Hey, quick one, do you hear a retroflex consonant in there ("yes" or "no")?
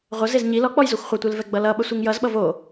no